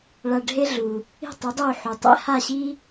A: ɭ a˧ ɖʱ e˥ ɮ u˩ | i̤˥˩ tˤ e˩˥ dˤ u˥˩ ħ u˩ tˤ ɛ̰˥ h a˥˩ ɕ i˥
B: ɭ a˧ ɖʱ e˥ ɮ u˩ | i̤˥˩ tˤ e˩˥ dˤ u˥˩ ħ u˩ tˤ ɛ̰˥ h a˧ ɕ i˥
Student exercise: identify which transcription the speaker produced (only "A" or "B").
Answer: A